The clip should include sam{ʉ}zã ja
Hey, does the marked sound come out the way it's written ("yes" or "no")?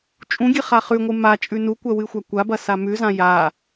yes